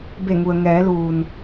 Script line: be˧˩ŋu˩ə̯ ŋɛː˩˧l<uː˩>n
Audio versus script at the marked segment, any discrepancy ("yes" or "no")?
no